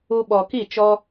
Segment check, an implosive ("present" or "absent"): present